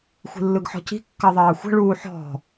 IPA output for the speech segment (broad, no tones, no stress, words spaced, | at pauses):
xʷi̤lːɯɡħɔ̤ci̤ kːɑðˤɑːxʷə̤ ɭuːħɔ̤